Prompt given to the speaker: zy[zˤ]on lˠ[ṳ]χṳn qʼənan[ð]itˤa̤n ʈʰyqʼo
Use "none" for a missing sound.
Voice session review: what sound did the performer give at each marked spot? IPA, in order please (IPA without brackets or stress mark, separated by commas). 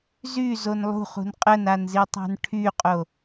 z, ṳ, z